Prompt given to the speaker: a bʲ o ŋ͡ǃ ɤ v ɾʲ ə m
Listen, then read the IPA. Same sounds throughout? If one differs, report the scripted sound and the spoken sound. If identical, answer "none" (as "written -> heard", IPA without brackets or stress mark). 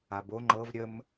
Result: bʲ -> b